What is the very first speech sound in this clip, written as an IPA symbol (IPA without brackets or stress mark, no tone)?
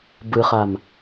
b